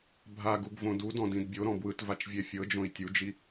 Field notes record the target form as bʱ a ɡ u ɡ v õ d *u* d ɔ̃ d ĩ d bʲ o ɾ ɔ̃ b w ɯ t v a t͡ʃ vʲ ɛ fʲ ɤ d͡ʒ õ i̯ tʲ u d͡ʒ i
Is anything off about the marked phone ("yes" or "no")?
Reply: no